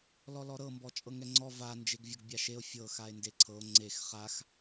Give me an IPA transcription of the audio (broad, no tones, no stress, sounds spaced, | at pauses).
l ɔ l ɔ ɾ ɤ m b ɔ t͡ʃʼ ɤ ŋ ɛ ŋ͡ǀ ɔ v a n d͡ʒ e ɡ vʲ ɤ ɡ bʲ a ʃ e o̯ fʲ ɤ x a e̯ n d e ǀʰ ɤ o̯ ŋ͡ǀ e x χ a x